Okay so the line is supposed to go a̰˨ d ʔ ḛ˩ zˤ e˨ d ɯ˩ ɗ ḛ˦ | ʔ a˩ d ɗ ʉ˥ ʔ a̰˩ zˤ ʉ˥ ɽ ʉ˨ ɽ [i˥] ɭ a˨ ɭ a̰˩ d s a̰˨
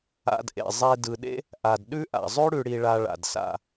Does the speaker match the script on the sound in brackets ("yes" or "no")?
no